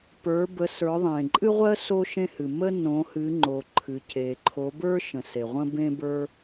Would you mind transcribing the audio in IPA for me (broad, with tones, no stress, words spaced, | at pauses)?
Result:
pə˞˩˧ bə˩˧sə˞˩˧ðˤẽ˩ ǃʼɨ˦ʁʷɜ˦ so˦ʃẽ˦hɨ˩ mə˦ nõ˩˧hɨ˩˧ŋ͡ǃo˩ ǃʰɨ˩ce˩ǃʰo˩˧ bə˞˦ ʃə̃˩se˩ʁʷə̃˦ bẽ˦bə˞˦